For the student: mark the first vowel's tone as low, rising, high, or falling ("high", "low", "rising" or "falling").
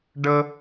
high